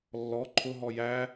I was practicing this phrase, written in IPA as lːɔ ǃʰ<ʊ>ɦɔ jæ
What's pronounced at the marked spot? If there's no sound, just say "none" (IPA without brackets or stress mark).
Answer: ʊ